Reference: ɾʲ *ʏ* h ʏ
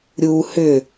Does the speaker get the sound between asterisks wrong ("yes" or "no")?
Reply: yes